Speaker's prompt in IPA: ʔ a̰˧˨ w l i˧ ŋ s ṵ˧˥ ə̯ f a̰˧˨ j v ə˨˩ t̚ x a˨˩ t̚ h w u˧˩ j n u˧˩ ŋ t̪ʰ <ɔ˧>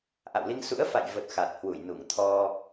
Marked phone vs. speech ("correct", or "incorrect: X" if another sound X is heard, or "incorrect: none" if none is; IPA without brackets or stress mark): correct